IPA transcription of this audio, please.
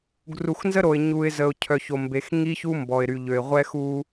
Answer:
ɡru˨xnzə˦ɾo˨ɪ̯ ɲu˨ɪ̯zə˨ʊ̯ cʰœ˨ço˨mbe˨x ŋi˦çu˦ mbɔ˨ɪ̯ ɾy˨ʎø˨ɪ̯ʁʷɛ˦xu˦

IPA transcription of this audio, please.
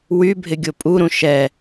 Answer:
wybʱɪ ɡʲopʼuɾũ ʃɛ

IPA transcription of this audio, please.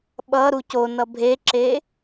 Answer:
ɓʌ ɾuconʌ bʱeǁe

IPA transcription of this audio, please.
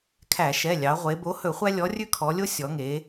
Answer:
kʰæ˧˩˧ʃɛ˩˧˩lʲɑ˩˧ ʁʷe˩˧bo˨˥hɵ˧˩˧χʷæ˦ lʲɔ˨˥ rʲʉ˦kʰɔ˩˧lʲo˦ sʲɔ˩˧ŋe˩˧

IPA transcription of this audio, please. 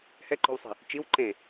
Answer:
hɛǃo̤wsˤi̤ | t͡ʃiw ǃẽ

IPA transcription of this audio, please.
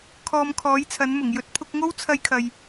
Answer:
kʰɔː˧mkʰɔː˨˥jt͡sʰɐ˨˥nmʊ˨˩ŋ jɵ˧t̚pʰʊ˧k̚ŋo˥w t͡sʰɐ˥jkʰɐ˧j

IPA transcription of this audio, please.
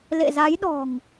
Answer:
lḛ˧˨za˨˦jɗɔ̤˨˩ŋ

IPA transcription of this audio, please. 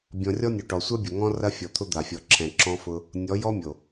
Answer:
bʲɔ̃˨rʲɔ˦nʲo˨ ʈɔ˨sʷa˦bʲʊ˨ ŋɔ̃˦rɐ˦ fʲɔ˨t̪ʰʊ˦d̪a˨fʲɔ˨ ǁʰɛ̃˨ ǁɔ̃˦fʊ˦ | nʲɔ˨˦ jɔ˦mʲo˨

